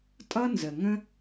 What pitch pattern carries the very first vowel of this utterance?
high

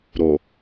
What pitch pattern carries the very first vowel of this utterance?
low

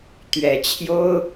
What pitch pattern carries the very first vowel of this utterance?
low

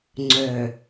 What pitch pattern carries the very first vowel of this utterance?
low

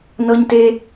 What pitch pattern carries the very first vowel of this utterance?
high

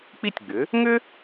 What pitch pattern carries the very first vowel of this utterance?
falling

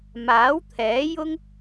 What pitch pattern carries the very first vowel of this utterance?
rising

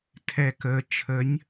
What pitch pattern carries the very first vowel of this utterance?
low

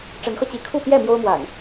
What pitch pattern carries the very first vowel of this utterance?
rising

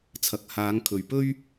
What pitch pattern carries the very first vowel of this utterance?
rising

